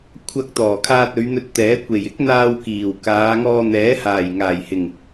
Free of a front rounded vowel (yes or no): yes